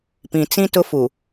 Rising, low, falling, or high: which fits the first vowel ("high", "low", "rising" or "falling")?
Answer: low